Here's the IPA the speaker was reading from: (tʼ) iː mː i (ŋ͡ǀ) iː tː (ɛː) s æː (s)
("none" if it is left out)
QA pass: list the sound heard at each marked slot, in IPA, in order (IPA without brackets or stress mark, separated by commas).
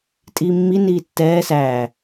tʼ, n, ɛː, none